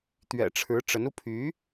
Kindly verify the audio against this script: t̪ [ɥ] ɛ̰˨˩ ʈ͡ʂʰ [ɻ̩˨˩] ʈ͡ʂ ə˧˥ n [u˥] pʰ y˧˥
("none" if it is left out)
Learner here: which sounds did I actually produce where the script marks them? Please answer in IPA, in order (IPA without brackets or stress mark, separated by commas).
ɥ, ɻ̩˧˥, u˧